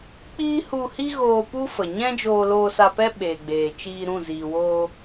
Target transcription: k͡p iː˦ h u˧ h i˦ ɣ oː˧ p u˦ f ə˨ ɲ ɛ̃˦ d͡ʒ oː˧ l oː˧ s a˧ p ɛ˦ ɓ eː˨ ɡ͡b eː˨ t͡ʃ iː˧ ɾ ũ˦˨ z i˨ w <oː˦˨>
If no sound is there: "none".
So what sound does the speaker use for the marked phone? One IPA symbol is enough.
oː˧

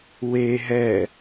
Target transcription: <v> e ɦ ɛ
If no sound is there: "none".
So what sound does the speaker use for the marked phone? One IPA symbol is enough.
w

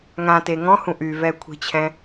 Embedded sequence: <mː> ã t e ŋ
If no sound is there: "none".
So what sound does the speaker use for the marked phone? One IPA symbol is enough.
ŋ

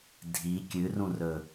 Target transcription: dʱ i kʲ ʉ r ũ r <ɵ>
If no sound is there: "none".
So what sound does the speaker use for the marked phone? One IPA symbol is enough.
ɵ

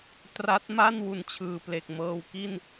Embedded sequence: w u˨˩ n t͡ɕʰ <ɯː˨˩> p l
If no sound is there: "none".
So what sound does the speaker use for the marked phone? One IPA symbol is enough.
ɯː˨˩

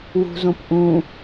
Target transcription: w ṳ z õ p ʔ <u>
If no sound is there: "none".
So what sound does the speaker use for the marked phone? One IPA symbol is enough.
ũ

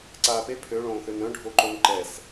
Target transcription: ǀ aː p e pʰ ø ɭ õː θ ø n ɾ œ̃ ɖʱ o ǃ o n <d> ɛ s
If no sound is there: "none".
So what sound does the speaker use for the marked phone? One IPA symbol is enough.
ǃ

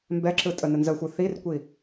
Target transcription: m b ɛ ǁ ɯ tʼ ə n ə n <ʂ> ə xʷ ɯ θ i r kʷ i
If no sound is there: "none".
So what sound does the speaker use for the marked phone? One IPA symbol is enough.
z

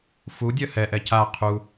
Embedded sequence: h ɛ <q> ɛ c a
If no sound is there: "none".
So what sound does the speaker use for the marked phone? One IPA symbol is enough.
ʔ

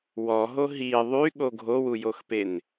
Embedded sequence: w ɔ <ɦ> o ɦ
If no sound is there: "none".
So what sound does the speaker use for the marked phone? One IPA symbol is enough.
ɦ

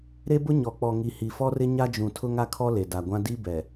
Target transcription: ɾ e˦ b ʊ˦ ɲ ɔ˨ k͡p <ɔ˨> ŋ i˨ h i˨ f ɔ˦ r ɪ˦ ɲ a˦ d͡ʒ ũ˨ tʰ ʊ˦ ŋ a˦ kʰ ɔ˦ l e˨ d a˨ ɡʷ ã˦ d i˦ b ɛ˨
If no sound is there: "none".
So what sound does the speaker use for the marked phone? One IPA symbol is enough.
ɔ˨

